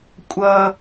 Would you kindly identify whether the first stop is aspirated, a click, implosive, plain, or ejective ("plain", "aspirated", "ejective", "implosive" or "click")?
ejective